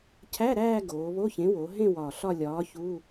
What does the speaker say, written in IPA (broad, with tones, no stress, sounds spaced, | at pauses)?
cʰ æ˧˥˧ ɾ æː˥˧ ɡ oː˩˧ β o˧˥˧ ç ẽ˨˥ w o˩˧ ɦ ẽ˥˧ w ɒ˨˩ ɬ ɒ˥˧ lʲ ɒː˨˥ ç u˧˥˧